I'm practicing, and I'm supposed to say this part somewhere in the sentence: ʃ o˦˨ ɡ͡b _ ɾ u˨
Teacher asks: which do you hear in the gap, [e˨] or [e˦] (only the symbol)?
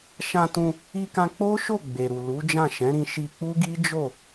e˨